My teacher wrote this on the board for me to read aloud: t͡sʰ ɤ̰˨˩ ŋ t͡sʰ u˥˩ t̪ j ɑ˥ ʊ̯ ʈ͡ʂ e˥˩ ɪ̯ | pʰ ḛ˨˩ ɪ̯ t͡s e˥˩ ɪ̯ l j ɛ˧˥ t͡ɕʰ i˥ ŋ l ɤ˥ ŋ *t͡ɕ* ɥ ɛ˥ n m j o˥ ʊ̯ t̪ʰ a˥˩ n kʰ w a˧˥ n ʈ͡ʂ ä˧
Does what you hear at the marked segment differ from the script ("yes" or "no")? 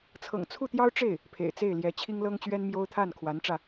no